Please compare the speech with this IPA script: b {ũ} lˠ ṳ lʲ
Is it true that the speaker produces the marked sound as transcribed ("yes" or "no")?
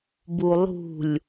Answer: no